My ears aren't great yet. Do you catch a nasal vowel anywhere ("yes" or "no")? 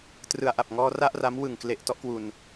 no